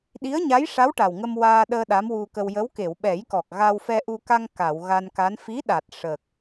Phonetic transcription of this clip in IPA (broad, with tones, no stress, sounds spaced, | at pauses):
ɗ i˧˥ ə̯ ɲ a˧˥ j ʂ a˧˥ w ʈ a˨˩ w ŋ ə˧ m w aː˧ ɗ əː˧ ɗ a˧˥ m w u˧ k ə˧ w j ə˧˥ w k e˨˩˨ w ɓ ɛ˨˩˦ j k ɔ˨˩ k̚ ɣ a˧ w f ɛ˧ ʔ u˧ k a˧ ŋ k a˨˩˨ w ɣ a˧ n k a˧˥ n f i˧˥ ɗ a˨˩ t̚ ʂ ə˨˩ k̚